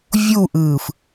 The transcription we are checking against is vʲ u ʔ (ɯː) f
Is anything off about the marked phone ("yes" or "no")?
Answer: no